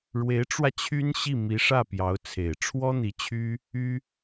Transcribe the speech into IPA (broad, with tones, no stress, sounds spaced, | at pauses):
ɻ w e˧˥ ɪ̯ ʈ͡ʂ w ä˧ t͡ɕʰ y˥ n ɕ i˥˩ m i˧˥ ʂ ä˥˩ p j ɑ˧˥ ʊ̯ t͡sʰ e˨˩ ɪ̯ ʈ͡ʂʰ w ɔ˥ n̪ i˧˥ t͡ɕʰ y˥ | y˥